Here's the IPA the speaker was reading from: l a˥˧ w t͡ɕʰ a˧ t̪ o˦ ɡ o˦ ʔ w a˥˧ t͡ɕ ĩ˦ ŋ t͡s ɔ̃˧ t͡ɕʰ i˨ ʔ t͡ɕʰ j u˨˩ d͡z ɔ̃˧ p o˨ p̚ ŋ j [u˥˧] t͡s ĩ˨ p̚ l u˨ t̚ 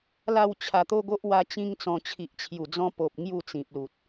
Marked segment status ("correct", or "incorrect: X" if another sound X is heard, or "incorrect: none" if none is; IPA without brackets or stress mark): correct